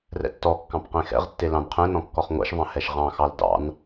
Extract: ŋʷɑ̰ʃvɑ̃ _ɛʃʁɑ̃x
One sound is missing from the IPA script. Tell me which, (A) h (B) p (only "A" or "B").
A